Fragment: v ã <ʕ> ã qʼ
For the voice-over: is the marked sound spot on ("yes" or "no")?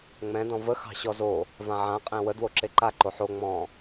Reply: yes